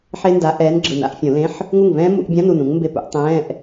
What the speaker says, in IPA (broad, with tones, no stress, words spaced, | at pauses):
ħe˦˥nda˨˥ ʔɛː˨˥nɡ͡ǁɯ˨˩n a̰˨˩˦ʔfʲõ˨˩˦lẽ˧˥˧ħ | ŋu˥˩ŋvɛ̃ː˦˥ mṵ˨˩˦ʔbʲã˧˥˧n u˥˩nũ˨˥ŋ mbe˥˩pṵ˨˥ʔ tˤɛ̃ː˧˥˧ʔ